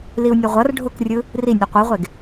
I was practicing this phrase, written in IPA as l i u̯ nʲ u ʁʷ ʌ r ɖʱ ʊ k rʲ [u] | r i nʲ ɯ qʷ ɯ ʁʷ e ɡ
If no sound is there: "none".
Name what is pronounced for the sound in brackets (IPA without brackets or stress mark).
ɯ